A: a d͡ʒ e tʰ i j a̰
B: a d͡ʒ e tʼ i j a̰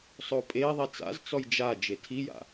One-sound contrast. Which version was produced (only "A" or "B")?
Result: A